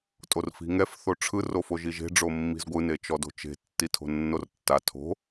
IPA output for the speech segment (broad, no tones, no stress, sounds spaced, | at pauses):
tʼ o r f i̤ ŋ ɛ f θ o ʈ͡ʂʰ ɯ r o f o ʒ i ʒ e̤ ɖ͡ʐ o mː i̤ z ɡʷ ɯ n e t͡ʃ ɔ d o̤ t͡ʃ e̤ tː i tʰ o̤ nː o r tː a tʰ o̤